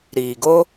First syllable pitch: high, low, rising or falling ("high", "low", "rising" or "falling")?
low